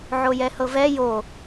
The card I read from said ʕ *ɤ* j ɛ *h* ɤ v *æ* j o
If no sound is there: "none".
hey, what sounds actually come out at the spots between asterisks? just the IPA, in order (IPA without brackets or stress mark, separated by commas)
o, h, ɛ